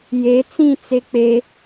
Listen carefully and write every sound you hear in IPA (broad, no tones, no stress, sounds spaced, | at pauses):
j e t͡s ĩ t͡s e k͡p e